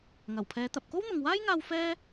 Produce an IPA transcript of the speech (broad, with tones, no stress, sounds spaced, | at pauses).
ŋ ɐ˨˩ w pʰ ɛː˨˧ t̪ ɐ˨ p̚ k o˥ w n̪ ʊ˨ ŋ w aː˥ j ŋ aː˧ w f ɛː˥